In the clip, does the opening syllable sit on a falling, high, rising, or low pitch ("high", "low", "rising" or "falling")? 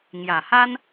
low